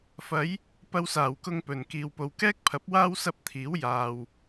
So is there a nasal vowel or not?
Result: no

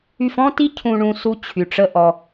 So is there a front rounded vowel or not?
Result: yes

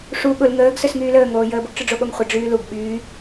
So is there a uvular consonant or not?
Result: yes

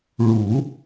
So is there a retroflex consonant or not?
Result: yes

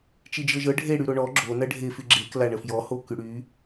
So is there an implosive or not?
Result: no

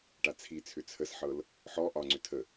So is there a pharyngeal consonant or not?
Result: yes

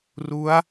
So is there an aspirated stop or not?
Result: no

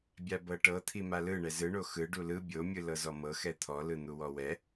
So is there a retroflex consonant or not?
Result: yes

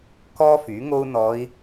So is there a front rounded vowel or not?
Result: yes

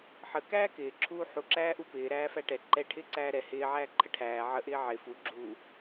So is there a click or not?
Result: yes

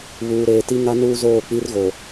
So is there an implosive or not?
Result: no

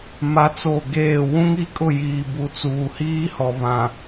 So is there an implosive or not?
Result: no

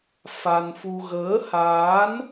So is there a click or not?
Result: no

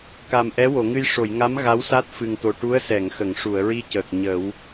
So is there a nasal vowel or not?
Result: no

